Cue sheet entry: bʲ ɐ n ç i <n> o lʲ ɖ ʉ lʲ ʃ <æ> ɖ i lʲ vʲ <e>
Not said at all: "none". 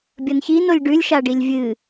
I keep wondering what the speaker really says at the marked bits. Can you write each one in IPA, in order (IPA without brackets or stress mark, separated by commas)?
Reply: n, a, ɨ